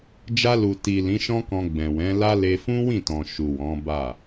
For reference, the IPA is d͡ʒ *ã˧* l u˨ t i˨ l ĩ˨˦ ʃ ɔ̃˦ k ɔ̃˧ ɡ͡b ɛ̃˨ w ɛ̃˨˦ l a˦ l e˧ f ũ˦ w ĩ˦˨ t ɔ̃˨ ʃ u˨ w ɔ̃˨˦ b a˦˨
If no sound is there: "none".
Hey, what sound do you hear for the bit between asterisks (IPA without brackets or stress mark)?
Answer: a˧